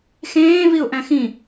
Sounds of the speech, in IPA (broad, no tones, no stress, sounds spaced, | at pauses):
x ẽː v i ʊ̯ ʔ æ̃ x ĩ